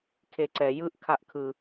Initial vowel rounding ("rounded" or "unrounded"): unrounded